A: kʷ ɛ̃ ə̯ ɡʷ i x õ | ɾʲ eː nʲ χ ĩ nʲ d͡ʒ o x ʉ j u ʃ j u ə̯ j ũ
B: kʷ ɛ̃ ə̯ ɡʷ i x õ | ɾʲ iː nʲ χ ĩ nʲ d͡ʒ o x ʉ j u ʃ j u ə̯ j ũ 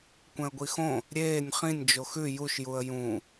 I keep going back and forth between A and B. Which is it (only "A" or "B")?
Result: A